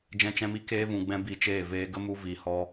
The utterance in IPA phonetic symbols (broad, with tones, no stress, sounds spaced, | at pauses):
d͡ʒ ɛ̃˧ t͡ʃ ɛ̃˧ m i˧ k eː˧ v ũ˨ ɡ͡b ɛ̃˧ b i˧ t͡ʃ eː˦˨ v eː˧ ɡ ə˦ m u˧ v i˨ h ɔ˧